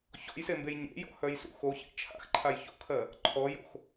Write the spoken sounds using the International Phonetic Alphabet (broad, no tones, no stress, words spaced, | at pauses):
çɔ̰jsembej ɲḛjɔ̰hœjsṵ xoçḛ t͡ʃʰa̰xǃʰaj ço̰kʰɜ | ǃʰɔjo̰x